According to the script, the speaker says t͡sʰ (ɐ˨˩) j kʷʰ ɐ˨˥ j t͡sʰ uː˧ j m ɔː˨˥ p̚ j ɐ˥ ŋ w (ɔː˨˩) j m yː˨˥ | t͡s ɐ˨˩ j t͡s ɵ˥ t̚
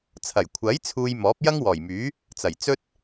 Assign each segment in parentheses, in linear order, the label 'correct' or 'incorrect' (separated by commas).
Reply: correct, correct